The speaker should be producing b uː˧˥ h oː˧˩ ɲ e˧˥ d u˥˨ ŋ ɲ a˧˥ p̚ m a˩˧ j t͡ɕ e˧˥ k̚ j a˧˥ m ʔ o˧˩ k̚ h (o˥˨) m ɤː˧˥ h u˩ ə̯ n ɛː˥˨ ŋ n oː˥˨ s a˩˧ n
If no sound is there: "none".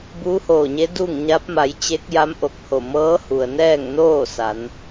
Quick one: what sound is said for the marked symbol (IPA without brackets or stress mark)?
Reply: o˧˩